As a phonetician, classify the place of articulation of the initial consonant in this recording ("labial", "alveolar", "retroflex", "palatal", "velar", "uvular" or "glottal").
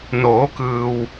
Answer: alveolar